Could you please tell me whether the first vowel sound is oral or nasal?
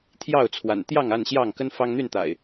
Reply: oral